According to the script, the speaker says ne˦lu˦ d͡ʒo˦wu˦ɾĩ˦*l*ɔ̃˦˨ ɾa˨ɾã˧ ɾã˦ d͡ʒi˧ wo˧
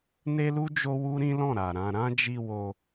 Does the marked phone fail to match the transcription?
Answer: no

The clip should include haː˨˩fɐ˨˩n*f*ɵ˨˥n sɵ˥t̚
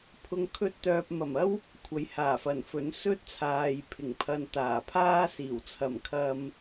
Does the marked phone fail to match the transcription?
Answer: no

